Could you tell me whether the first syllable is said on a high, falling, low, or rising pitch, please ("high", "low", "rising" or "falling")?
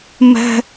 high